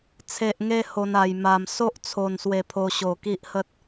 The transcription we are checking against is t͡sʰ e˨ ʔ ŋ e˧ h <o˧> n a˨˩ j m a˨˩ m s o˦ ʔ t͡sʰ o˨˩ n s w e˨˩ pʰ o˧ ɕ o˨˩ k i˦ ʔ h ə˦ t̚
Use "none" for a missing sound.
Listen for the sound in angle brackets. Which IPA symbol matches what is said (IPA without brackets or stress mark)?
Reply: o˧